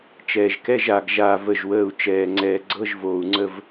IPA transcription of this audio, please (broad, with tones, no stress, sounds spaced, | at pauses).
t͡ʃ ɛː˨ ʒ k ɛ˧˥˧ ʒ a˨ ɡ ʒ aː˦˨ v ə˦˨ ʒ w əː˦˨ u̯ t͡ʃ ɛː˨ ŋ͡ǀ ɛː˨ ɡ͡ǀ ɤ˧˥˧ ʒ v oː˨ u̯ ŋ͡ǀ ə˦˨ v